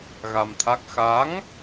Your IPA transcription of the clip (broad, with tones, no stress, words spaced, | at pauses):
ɣa˧mt̪ʰa˦˥k̚ xa˨˦ŋ